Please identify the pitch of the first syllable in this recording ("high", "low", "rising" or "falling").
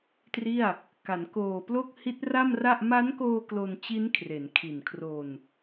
falling